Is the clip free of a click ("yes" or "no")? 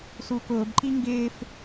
no